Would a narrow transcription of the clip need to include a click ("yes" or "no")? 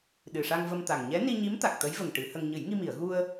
no